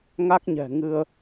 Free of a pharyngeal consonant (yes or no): yes